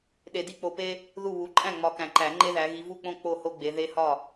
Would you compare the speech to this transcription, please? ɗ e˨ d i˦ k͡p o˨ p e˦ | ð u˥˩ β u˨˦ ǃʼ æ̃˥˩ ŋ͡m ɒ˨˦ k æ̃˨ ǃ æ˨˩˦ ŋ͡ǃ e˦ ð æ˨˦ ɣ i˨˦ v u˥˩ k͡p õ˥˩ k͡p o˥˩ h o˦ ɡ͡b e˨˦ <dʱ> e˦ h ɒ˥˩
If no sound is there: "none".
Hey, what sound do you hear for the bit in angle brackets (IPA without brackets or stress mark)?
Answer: ð